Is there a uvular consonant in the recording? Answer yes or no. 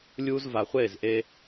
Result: yes